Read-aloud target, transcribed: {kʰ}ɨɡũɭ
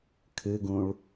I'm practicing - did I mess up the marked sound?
no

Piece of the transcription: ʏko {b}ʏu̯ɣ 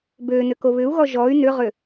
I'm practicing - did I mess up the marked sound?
yes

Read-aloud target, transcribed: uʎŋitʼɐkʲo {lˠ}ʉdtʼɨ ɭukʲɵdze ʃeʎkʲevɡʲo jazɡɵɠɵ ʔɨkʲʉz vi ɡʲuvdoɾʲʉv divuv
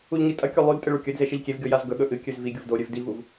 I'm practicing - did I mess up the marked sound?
no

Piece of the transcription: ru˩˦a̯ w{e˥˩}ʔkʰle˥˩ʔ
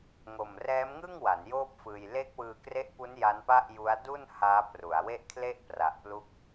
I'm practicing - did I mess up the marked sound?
no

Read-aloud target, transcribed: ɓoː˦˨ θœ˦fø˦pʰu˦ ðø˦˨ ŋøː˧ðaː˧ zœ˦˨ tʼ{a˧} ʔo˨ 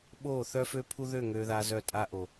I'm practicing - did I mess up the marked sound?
yes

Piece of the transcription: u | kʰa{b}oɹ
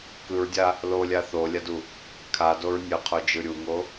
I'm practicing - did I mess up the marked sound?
yes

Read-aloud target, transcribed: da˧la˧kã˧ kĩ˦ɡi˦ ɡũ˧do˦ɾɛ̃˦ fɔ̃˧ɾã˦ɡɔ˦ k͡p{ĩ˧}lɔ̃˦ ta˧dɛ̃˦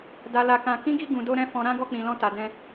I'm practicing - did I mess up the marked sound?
no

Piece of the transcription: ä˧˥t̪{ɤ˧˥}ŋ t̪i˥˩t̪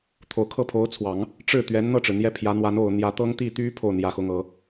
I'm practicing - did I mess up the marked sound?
yes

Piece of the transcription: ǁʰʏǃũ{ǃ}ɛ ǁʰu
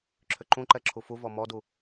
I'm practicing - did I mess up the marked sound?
no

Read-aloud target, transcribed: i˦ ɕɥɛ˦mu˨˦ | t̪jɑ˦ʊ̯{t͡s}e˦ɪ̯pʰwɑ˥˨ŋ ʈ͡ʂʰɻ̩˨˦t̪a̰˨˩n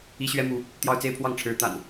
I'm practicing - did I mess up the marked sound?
no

